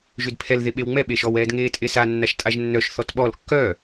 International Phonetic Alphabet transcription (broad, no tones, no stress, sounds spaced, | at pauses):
ʒ ʏ d pʰ ɛ l ð e ɓ e w ŋ͡m ɛ ɓ e ʃ ɔ w ɛː d ŋ eː tʼ e s a nː a ʃ tʼ a ʒ nː œ ʃ θ ɔ t ɓ ɔ l kː œ